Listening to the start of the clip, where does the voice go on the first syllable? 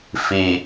low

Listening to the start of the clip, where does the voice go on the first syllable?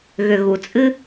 low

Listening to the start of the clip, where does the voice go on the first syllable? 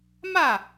falling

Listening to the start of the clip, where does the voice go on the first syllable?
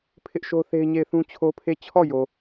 high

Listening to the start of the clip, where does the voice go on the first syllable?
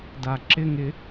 low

